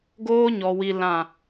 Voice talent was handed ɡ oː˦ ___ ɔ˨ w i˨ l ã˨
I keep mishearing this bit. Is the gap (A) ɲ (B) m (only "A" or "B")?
A